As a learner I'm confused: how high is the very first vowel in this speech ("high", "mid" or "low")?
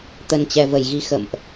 mid